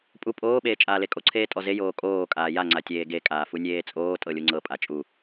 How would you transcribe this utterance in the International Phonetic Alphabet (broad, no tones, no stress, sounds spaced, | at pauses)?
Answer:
pʼ u pʼ oː ɓ eː t͡ʃʼ aː l e kʼ o ǀʰ eː tʼ ɔ z e j oː kʼ oː kʼ aː j a ŋ͡ǀ a tʲ eː ɡ e kʼ aː f u nʲ eː t͡sʼ oː tʼ ɤ lʲ u ŋ͡ǀ ɤ pʼ a t͡ʃʼ u